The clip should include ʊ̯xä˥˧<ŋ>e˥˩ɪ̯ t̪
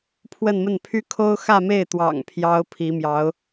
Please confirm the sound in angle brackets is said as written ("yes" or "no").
no